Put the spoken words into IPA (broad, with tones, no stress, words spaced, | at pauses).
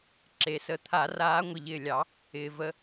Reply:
ǁe˩sə˨˦ t̪ʰa˨˩˦raː˨˦ ŋʷi˩ʎɪː˧˩ lʲɑ˨˩˦ | ɪː˩və˨˦